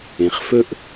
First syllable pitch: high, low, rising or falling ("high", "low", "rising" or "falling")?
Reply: low